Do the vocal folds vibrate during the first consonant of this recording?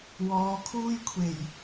yes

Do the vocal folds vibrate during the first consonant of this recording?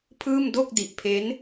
no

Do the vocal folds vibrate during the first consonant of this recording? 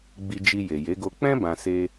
yes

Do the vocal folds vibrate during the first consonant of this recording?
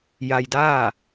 yes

